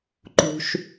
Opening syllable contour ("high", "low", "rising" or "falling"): low